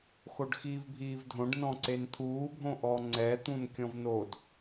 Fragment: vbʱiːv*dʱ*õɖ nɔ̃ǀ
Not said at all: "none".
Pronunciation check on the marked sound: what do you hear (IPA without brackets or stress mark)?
dʱ